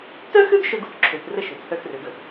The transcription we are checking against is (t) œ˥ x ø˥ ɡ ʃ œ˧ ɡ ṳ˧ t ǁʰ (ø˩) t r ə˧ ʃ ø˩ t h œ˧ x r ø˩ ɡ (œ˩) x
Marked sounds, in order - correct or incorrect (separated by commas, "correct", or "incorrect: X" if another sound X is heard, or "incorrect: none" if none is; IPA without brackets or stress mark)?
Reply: correct, correct, correct